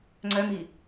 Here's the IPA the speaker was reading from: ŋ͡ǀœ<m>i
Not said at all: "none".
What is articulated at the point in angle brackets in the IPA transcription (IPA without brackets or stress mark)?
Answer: m